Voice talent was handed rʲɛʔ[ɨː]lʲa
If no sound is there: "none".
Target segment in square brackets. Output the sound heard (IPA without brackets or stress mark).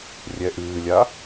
ɨː